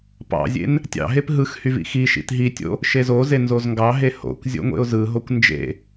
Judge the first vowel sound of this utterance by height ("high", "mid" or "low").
low